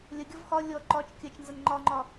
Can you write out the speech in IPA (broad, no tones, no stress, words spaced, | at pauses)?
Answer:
lʲɐɡʲɔv xɒ lʲɔ ǃɒt͡ʃ kʲɐt͡ʃnzɐn ŋ͡ǃɒŋ͡ǃɒ